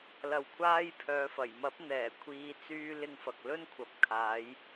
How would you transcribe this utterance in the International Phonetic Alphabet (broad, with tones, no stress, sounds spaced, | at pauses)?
l ɐ˨ w kʷʰ aː˧ j pʰ œː˨˧ f ɐ˨˩ j m ɐ˨˥ p̚ n̪ ɛː˨˩ kʷʰ iː˨˧ t͡s yː˧ l ɪ˧ ŋ f ɐ˨ k̚ l ɵ˥ n kʷʰ ɐ˨ p̚ kʰ aː˨˧ j